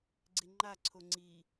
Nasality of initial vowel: oral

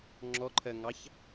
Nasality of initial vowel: oral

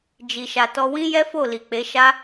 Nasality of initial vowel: oral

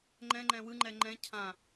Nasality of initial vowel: nasal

